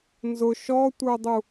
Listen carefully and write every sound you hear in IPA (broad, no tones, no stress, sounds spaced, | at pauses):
n z ʊ ʃ ɔ tʷ ə˞ dˤ u